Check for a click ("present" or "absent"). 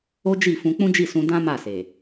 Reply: absent